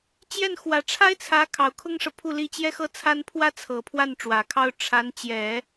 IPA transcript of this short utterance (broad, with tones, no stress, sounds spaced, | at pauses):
t͡ɕ j ɛ˥˩ n x w ä˨˩ ʈ͡ʂʰ a˥ ɪ̯ t͡sʰ ä˧˥ kʰ ɑ˨˩ ʊ̯ kʰ ʊ˥ ŋ ʂ ɤ˨ pʰ u˥˩ l i˥ t͡ɕ j ɛ˥ x ɤ˥ t͡sʰ a˥ n pʰ w ä˥ t͡sʰ ɤ˨˩ pʰ w a˥˩ n ʈ͡ʂ w ä˨˩ kʰ ɑ˥ ʊ̯ ʈ͡ʂʰ a˧˥ n t͡ɕ j ɛ˨˩˦